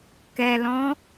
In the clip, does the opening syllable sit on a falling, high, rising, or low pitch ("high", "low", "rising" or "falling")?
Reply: low